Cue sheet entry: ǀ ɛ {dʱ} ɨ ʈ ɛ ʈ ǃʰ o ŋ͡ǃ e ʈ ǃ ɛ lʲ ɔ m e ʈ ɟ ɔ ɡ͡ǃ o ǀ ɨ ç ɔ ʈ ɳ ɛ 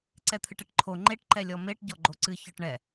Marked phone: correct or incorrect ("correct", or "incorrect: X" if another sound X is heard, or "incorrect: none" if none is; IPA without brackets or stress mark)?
incorrect: t̪ʰ